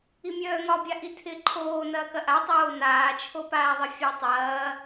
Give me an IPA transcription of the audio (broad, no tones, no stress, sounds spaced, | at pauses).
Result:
i mʲ œː ŋ ɒ bʲ a ʔ i tʰ ɪ ǃʰ oː n ɐː k ɐ ʔ a tˤ oː n aː t͡ʃʰ o p aː ðˤ ɪ fʲ a tˤ ɐː